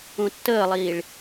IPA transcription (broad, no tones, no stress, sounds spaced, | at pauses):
ũ tː əː lˠ iː ɭ